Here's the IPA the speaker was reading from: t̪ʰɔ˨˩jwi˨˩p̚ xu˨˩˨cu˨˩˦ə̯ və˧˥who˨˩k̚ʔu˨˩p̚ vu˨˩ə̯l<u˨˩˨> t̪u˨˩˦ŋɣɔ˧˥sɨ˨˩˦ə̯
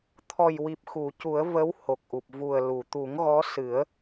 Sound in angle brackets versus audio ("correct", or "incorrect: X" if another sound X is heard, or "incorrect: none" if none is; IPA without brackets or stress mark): correct